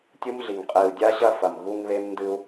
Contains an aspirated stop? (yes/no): no